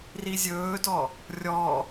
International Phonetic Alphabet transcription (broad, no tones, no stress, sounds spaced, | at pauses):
r i zʲ ɵː d ɔ | rʲ ɔ